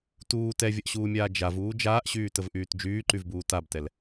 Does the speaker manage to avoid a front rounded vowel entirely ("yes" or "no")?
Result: no